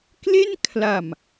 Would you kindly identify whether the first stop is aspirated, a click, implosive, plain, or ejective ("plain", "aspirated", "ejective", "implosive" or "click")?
plain